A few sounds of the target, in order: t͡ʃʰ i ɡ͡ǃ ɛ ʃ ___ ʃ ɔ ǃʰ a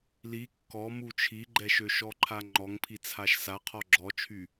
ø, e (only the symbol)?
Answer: ø